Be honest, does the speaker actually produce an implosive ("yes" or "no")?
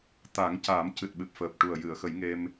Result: yes